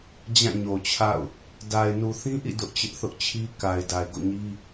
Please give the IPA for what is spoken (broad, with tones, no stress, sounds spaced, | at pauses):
d͡ʑ ã˦˨ ɲ o˨ t͡ɕʰ a̰˦˨ ʊ̯ | d a˨ ɪ̯ n u˨ θ ĩ˦ ʔ ḭ˦˨ d ʊ˦ ʔ t͡ɕ ɪ˦ ʔ θ ʊ˦ ʔ t͡ɕʰ i˦ k a˨ ɪ̯ d a˨ ɪ̯ ɡ o̰˦˨ ɲ i˦